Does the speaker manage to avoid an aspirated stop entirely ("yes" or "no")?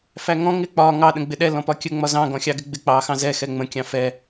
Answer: yes